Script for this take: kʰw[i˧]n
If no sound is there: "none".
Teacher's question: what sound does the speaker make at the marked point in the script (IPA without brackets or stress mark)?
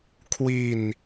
i˧